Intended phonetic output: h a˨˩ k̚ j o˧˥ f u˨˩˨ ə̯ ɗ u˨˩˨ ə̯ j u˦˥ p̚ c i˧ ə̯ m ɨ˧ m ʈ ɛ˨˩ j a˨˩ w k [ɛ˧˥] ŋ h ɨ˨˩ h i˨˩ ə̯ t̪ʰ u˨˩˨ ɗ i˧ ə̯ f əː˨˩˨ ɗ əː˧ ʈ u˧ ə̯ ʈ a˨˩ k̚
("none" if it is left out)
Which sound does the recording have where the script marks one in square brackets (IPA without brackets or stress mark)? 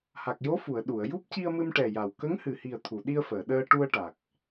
ə˧˥